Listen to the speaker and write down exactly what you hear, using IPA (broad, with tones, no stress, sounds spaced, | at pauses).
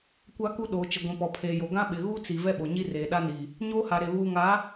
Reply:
kʷ a˦ k u˦ ɗ oː˨ t͡ʃ ɪ˨ ɡʷ ĩ˨ p ɔ˨ pʰ eː˨ j o˨ ɡ ã˦ ɓ ɪ˨ ɣ uː˦ t͡s i˨ v ɛ˦ ɓ o˨ ɲ i˦ r eː˨ ɗ a˦ n i˨ | ɲ oː˦ h a˨ ɾ e˨ β uː˨ ŋ a˨˦